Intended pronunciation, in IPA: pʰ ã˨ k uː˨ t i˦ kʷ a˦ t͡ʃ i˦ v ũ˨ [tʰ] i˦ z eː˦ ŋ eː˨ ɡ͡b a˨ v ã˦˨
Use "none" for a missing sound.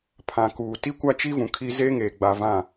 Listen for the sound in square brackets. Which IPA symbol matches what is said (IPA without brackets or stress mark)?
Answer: kʰ